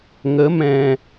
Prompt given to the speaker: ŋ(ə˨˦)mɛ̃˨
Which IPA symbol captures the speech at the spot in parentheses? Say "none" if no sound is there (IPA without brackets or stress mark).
ə˨˦